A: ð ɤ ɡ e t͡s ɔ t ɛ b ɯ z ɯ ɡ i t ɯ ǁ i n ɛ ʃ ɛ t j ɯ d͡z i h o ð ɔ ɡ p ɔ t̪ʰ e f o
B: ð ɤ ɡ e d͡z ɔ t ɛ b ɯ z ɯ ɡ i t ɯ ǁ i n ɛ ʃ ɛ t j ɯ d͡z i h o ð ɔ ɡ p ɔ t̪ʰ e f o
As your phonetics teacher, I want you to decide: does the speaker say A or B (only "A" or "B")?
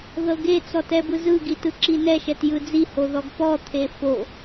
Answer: A